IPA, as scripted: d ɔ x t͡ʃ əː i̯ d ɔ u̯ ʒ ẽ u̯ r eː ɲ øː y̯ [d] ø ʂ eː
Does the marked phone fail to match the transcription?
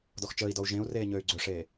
yes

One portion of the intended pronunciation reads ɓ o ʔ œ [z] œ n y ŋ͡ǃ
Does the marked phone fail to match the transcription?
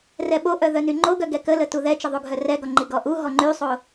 yes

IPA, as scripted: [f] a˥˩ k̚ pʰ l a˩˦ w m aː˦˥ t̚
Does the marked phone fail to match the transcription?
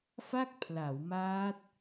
no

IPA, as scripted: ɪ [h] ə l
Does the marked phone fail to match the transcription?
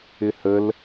no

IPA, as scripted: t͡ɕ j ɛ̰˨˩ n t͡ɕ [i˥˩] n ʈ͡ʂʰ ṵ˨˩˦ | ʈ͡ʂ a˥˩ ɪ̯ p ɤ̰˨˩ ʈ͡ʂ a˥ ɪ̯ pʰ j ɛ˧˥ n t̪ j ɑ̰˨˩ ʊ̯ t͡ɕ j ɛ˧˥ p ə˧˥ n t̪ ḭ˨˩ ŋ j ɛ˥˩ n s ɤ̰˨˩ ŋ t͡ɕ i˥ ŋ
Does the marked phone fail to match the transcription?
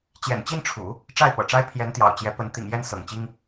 no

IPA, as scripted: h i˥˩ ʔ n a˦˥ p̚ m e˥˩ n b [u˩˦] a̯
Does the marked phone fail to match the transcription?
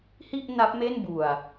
yes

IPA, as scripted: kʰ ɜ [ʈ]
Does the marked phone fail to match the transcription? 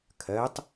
yes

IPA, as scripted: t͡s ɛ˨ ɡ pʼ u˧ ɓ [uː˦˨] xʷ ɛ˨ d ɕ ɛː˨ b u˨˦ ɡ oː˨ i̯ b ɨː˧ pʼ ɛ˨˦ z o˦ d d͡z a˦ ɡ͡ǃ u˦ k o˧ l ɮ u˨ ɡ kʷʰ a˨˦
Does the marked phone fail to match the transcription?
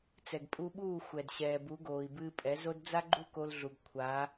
no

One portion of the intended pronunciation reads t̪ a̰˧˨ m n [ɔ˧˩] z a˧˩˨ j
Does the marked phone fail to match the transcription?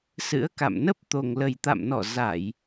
no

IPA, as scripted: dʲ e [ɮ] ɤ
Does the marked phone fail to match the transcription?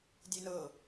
yes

